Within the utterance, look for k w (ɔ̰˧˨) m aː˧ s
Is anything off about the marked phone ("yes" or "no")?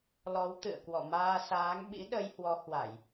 no